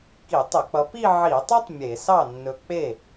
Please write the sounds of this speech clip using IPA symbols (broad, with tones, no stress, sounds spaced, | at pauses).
k i˧˩˧ tˤ ɵ˧˩˧ k͡p ʌ˨˦ p i˥˧ ʕ i˧˩˧ tˤ ɵ˥ tˤ mʲ e˧˩˧ s ɑ˥˩ nː ɵ˨˩ k͡p e˥˩